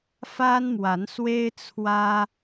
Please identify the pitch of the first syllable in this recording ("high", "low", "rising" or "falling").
high